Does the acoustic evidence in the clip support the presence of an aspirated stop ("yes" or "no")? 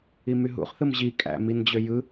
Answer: no